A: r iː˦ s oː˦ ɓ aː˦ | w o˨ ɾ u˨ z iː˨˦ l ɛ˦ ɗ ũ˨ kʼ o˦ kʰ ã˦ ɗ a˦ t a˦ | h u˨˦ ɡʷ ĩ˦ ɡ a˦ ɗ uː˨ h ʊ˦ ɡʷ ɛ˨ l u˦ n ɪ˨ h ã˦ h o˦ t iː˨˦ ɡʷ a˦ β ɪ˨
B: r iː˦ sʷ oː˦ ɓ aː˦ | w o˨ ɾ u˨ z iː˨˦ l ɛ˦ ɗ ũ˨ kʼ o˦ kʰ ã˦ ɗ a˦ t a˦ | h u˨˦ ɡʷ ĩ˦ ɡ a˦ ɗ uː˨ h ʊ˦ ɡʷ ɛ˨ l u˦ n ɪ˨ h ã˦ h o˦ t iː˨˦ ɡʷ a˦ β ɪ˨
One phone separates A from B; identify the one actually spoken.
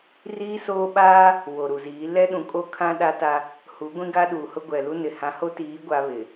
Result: A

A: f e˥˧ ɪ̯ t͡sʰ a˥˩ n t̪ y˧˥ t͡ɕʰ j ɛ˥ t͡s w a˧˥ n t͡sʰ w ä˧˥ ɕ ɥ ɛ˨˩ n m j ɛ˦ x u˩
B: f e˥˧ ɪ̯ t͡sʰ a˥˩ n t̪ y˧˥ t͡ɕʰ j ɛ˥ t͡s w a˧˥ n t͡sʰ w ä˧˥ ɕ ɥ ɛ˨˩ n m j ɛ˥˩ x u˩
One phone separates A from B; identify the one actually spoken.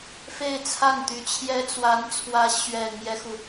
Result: A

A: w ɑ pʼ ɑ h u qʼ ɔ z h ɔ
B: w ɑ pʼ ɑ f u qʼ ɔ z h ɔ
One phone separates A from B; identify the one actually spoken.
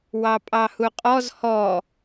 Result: A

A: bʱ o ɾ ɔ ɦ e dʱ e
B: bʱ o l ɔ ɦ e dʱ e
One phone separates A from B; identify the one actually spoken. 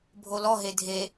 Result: B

